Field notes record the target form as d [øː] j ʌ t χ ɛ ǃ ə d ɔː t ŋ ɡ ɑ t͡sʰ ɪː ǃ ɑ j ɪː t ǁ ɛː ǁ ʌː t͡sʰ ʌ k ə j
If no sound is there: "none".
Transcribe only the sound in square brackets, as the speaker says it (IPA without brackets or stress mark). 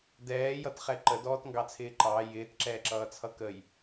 ɛː